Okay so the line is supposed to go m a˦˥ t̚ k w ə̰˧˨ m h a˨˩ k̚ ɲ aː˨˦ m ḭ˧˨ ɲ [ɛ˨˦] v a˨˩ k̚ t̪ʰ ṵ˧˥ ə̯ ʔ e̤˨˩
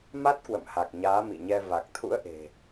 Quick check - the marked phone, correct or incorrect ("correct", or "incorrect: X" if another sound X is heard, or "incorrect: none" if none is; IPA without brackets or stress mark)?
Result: incorrect: ɛ˧